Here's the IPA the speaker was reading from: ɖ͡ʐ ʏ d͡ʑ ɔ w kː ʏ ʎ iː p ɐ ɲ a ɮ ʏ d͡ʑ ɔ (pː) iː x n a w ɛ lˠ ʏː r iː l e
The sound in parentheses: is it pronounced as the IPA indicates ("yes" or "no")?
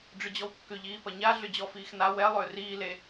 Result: no